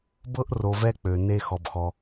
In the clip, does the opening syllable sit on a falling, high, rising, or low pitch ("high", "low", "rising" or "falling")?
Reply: high